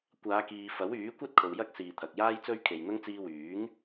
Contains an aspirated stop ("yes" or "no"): yes